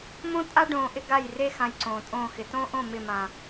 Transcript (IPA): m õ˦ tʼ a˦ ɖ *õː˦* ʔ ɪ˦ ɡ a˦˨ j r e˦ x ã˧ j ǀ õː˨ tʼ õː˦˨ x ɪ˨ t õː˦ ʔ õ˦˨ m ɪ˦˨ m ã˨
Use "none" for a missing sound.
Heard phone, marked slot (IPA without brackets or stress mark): õː˧